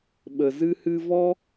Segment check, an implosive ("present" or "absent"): present